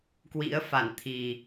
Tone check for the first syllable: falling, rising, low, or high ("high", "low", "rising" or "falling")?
rising